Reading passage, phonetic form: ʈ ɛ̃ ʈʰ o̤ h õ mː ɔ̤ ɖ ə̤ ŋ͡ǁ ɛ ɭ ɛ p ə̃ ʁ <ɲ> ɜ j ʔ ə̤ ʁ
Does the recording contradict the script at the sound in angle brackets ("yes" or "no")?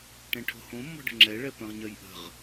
no